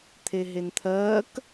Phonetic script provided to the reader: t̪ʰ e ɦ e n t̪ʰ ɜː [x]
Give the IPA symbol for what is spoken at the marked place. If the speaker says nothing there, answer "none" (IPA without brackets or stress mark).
k